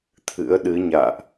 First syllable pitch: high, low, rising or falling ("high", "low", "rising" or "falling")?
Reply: rising